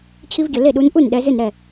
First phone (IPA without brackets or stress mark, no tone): t͡ɕʰ